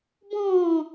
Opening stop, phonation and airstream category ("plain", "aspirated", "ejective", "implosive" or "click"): plain